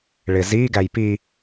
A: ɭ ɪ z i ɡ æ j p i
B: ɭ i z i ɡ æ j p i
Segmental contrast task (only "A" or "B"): A